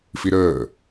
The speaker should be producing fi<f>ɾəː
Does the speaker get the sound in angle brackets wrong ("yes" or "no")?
yes